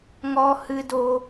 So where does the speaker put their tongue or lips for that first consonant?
velum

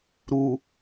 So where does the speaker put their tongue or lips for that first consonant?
tongue tip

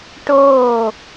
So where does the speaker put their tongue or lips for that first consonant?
retroflex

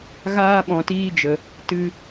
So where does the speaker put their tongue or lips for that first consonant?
velum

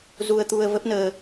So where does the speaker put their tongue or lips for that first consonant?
tongue tip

